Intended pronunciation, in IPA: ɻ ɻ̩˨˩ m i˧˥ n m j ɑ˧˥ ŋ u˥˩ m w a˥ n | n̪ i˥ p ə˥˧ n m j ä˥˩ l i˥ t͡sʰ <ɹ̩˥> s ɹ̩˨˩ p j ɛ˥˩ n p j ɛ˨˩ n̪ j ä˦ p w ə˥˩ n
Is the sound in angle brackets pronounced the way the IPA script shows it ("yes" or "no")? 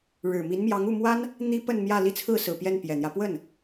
no